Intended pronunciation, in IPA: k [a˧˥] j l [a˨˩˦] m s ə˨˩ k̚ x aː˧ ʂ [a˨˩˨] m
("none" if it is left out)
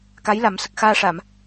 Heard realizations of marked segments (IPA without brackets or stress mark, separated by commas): a˧˥, a˨˩˦, a˨˩˨